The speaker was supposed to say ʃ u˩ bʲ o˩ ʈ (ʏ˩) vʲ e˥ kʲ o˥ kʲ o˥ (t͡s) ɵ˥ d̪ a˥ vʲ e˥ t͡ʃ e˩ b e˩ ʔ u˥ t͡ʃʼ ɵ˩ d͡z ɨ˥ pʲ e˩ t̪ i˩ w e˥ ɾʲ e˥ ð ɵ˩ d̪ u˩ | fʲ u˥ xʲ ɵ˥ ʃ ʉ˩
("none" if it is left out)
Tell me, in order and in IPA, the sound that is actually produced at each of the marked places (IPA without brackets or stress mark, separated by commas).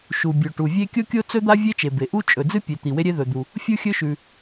u˩, t͡s